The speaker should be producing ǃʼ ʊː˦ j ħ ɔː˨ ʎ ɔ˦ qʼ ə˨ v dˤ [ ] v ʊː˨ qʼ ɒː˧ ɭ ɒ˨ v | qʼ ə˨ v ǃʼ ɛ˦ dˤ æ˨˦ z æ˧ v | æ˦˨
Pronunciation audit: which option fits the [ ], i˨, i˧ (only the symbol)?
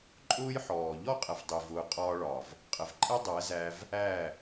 i˨